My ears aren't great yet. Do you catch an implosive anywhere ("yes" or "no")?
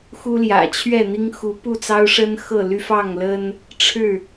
no